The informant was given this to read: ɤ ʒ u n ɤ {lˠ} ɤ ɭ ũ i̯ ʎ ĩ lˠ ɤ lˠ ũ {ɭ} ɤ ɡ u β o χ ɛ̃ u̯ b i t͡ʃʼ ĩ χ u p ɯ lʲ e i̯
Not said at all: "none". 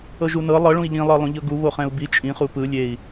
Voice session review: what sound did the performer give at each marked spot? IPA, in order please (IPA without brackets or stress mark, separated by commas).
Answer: lˠ, ʎ